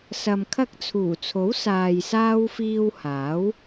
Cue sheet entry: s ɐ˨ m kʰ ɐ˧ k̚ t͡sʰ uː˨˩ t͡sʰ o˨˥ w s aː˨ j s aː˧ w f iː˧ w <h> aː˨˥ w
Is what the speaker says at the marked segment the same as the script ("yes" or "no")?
yes